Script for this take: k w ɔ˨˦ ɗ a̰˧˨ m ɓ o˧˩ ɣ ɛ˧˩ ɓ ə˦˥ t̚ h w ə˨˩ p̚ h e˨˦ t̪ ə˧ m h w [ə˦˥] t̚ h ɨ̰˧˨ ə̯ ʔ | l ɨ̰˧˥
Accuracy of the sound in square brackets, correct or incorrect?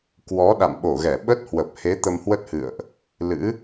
correct